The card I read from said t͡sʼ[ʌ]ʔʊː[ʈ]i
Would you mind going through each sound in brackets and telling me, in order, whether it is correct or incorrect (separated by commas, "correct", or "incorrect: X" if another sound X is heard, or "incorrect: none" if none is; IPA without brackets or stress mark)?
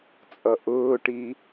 correct, correct